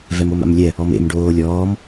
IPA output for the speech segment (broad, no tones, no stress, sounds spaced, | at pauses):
v ɛ m o m a̰ m lʲ ɛ | ɔ m ḛ m ɖ oː lʲ ɔː m